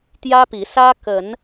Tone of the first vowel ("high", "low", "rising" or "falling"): high